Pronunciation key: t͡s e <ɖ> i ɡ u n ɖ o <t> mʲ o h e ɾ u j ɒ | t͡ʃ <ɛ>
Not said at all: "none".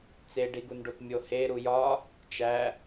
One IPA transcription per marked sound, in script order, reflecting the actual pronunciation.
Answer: ɖ, t, æ

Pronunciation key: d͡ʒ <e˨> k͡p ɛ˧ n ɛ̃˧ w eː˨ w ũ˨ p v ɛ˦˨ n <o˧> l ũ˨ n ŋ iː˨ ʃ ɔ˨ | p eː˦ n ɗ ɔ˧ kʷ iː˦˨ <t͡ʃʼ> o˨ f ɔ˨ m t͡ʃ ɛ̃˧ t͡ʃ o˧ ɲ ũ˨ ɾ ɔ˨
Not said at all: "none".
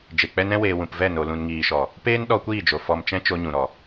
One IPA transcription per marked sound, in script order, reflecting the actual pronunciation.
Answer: e˨, o˨, d͡ʒ

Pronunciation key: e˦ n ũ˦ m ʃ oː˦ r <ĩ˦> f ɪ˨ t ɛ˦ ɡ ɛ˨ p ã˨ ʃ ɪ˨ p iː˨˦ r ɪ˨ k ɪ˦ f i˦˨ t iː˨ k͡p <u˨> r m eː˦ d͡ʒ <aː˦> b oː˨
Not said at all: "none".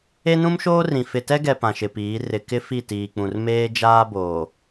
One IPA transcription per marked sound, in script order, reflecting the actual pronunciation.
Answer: ĩ˨, ũ˨, aː˦

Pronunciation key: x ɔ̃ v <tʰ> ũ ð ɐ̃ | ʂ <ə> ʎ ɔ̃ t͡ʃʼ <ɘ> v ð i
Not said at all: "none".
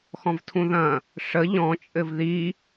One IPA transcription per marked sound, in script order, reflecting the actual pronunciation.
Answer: tʰ, ə, ɘ

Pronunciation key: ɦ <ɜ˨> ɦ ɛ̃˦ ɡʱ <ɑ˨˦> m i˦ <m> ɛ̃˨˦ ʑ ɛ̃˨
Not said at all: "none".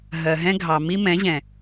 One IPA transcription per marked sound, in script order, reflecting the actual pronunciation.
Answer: ɜ˨, ɑ˨, m

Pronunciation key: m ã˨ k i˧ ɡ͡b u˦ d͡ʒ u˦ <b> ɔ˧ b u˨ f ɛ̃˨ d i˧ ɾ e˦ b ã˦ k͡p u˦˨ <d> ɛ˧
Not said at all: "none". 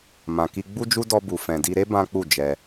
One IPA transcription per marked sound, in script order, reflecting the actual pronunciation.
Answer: d, d͡ʒ

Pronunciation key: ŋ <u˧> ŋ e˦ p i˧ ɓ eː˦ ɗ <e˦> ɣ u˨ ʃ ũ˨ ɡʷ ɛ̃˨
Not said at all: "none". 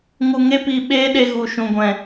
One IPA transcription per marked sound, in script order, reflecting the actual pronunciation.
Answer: u˧, e˧

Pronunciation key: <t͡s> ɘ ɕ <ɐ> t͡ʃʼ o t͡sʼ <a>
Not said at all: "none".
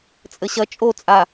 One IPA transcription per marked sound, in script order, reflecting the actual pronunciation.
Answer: t͡sʼ, ɐ, a

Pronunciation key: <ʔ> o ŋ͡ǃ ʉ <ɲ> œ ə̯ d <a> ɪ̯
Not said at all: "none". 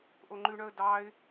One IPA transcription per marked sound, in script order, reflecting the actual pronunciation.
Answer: ʔ, ɳ, ɑ

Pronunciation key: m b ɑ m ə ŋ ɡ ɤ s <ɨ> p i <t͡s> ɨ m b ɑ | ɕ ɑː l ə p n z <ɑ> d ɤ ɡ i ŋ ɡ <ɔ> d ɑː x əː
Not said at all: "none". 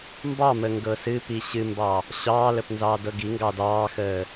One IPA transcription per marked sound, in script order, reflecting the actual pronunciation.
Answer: ɨ, ɕ, ɑː, ɑ

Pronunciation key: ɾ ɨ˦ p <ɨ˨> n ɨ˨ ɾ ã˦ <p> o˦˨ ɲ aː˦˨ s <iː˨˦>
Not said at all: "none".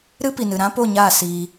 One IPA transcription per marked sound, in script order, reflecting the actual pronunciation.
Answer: i˨, p, iː˧

